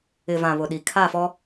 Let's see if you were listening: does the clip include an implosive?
yes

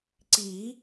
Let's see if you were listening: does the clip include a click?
yes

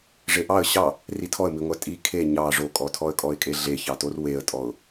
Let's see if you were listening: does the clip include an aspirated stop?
yes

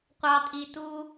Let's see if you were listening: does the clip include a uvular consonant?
yes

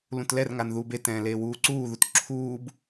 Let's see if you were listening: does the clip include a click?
yes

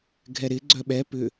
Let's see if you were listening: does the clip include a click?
yes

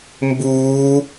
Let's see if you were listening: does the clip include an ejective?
no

